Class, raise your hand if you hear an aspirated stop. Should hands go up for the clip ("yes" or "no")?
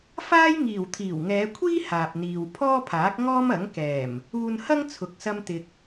yes